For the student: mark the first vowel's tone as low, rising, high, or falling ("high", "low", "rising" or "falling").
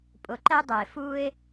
low